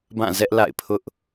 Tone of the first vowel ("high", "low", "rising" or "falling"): falling